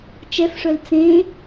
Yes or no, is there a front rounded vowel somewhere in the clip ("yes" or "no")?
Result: yes